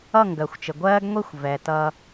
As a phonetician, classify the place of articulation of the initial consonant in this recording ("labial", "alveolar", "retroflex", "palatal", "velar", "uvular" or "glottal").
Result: velar